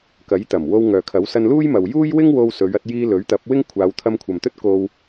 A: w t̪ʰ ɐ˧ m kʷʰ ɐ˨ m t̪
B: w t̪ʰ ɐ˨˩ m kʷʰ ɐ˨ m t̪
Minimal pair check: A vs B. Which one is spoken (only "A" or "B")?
A